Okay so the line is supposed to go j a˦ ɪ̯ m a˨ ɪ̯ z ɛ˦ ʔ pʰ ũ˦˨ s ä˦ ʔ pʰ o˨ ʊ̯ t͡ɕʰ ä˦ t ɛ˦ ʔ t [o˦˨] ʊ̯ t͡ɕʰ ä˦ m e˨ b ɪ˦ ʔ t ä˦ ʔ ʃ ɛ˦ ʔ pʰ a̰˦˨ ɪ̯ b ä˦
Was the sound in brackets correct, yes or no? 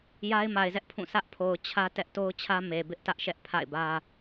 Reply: no